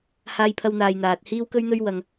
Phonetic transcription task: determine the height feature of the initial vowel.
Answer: low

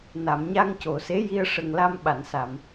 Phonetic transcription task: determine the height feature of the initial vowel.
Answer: low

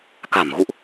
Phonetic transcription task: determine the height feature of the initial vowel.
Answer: low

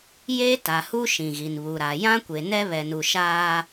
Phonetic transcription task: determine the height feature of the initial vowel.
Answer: mid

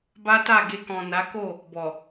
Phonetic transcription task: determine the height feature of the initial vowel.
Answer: low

